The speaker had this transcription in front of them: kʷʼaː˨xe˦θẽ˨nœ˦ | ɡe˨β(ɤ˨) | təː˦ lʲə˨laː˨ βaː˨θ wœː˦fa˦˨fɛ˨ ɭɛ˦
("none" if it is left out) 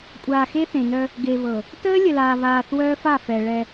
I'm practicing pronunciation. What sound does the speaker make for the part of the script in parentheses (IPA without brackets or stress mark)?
ɤ˨